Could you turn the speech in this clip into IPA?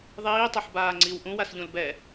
ðˤiːtˤɛħbaː ŋ͡ǀiw ʔũwasʎũl bɛ

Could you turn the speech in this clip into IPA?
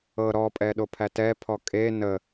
ɤ ɾɔpʼɛ ɗopʰætɛpʰɔ kʼe nə

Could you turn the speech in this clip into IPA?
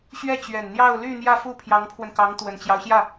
ɕɥɛ˥˩t͡ɕɥɛ˨˩nn̪jɑ˥˧ʊ̯ ly˥˧n̪jä˥˧ fu˥˩pʰjɑ˧˥ŋpʰwə˧nkɑ˧˥ŋ t̪wə˨˩nt͡ɕjɑ˦ʊ̯ɕjä˥˩

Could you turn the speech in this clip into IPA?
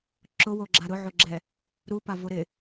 ǁʊwoɡ͡ǁa ɾʊʕoɡ͡ǁɛ | ɾupavo ɾɪ

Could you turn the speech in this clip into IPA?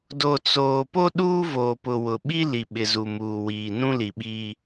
do˨t͡soː˨ po˦ɗuː˦voː˨ pʊ˨wʊ˨ ɓi˦ li˨ɓɪ˨ zu˨muː˨wiː˨ nũ˦li˨ɓiː˦

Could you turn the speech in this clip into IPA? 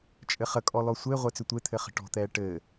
t͡ʃʼɘχə kʼɔlɔsʷe ʁʷet͡sʏtʷe t̪ʰɘχə̤ʈɔ̤ t̪ɛːʈɘː

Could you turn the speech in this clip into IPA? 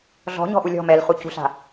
ɮɔ̤ɲɔ̤ʔu lʲɔ̤ mɛlχucṳɬa̤

